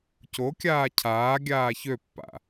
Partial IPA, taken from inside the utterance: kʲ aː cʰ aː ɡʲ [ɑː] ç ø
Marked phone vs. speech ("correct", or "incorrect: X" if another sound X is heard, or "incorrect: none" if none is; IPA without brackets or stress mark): incorrect: aː